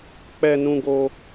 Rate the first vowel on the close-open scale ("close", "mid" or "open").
mid